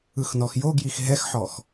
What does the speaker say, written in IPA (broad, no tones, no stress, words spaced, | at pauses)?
ɯxnɔxjoɡjix ɦɛxħɔx